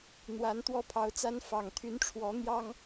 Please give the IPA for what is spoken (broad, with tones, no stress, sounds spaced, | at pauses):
n̪ w a˨˦ n t̪ w ɔ˦ pʰ ɑ˨˦ ʊ̯ t͡s a˦ n f ɑ˨˩ ŋ t̪ʰ y˨˦ n ʈ͡ʂʰ w ɔ˨˦ n̪ j ɑ˦ ŋ